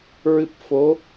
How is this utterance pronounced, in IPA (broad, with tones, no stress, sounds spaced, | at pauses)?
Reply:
ɹ ɨ˦˥ p̚ f o˧˥